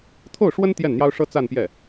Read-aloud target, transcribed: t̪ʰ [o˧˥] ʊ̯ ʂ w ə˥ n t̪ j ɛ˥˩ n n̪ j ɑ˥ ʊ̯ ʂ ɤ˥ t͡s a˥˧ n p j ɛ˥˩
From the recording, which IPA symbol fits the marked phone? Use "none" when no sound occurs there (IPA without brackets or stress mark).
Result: o˥˩